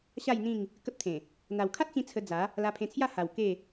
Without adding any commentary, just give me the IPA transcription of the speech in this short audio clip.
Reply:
ɕa˥˧jn̪ĩ˥˧ŋ | kə˦p̚t̪ʰẽ˨˩ | n̪a˨˩wkʰa˦t̚t͡ɕĩ˧ t͡sʰə˧d͡za˨˦ | la˧pʰẽ˧t͡sʰja˥˧ ha˨˩w ke˥˧

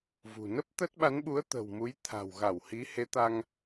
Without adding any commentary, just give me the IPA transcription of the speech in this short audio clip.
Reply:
vṳ˨˩ nə˦˥p̚t̪ə˦˥t̚ɓa˨˦nɓu˨˦ə̯ t̪ə̤˨˩wmu˨˦j t̪ʰa̤˨˩wɣa˧˩whi˨˦ he˨˦t̪a˧ŋ

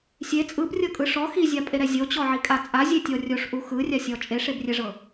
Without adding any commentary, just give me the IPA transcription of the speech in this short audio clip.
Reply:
sʲe t͡sʼɯbrʲɤkʼɯ ʂɔ xizʲapʼeɾɛ zʲot͡ɕɔʕikʼa t͡sʼazʲetʲɔ rʲoʂʔu xɯrʲasʲɔ t͡ʃʼeʂebrʲɛʐɤ

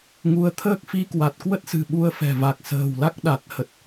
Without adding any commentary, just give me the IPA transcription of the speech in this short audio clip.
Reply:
ŋu˨˦ə̯t̪ʰəː˦˥k̚ fi˧kwa˨˩t̚ kwə˦˥t̚sɨ̤˨˩ ɓu˧ə̯fɛ̤˨˩ va˨˩k̚sə̤ː˨˩wla˦˥k̚ɗa˨˩t̚ hə˨˩t̚

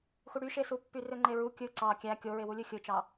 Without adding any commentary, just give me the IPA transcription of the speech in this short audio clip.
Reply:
xuɽyʃesu pːyrøŋ͡ǃeɹu kʲɯ ǀɑ kʲæ kʲoɹewulʲɯ xʲɯt͡ʃɑ

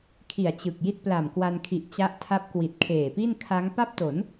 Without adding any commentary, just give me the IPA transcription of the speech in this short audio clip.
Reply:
kʰi˨˩a̯t͡ɕɯ˨˩k̚ ji˦˥t̚pla˨˩mkwa˧nkʰi˨˩ʔ t͡ɕa˦˥ʔ tʰa˦˥p̚kwi˨˩t̚kʰeː˨˩pi˥˩n kʰa˦˥ŋ pa˥˩p̚to˩˦n

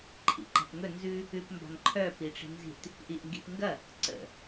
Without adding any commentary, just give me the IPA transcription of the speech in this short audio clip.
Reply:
ǃʰḭǃa̤pŋɵ nzʉ | ʉpmba̤ŋǃʰœ piʈ͡ʂi̤nzi̤t | ʔiʔŋɡi̤pŋɡɐ | ǀə̰

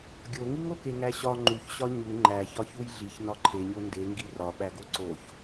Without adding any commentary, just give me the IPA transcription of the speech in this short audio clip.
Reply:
ɡʲoŋiŋoke ŋæɕɒ ŋ͡ǃuçɕɒ ɲu ŋ͡ǃæ çɒçujɮiç nɒǃʰeɲo ndeŋɡi rɒɓæɡo ǀoç

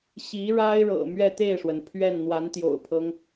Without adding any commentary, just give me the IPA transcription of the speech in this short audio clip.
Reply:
ɕi˧˥ɻa˥ɪ̯ɻɤ̰˨˩ mɥɛ˥˧t̪e˥˩ɪ̯ʂwə˩n pʰɥɛ˥˩n n̪wa˧˥nt̪jo̰˨˩ʊ̯pʰɤ˦ŋ

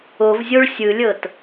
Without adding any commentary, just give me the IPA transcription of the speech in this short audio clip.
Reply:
ovzʲoɭ sʲɯlʲɤt

